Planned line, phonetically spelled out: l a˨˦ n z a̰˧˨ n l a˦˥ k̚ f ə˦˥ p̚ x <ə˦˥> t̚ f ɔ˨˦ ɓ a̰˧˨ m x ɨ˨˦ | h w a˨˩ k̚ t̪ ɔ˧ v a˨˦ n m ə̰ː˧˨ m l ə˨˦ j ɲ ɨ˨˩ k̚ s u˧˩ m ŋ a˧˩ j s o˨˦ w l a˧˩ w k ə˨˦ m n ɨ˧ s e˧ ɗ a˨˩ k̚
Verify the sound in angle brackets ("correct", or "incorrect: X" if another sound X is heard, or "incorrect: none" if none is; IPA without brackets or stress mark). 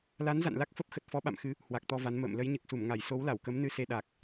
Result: incorrect: ə˨˩